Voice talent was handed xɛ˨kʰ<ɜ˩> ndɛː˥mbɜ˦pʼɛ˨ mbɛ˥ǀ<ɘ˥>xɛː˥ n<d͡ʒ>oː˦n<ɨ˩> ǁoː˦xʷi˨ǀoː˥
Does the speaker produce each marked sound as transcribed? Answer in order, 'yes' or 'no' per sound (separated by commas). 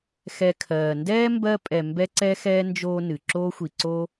no, no, yes, yes